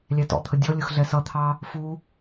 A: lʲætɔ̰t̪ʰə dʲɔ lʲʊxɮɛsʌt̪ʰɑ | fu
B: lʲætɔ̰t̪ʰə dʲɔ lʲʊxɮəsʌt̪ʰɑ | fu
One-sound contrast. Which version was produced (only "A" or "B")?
A